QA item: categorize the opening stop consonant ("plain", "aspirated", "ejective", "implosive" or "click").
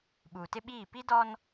implosive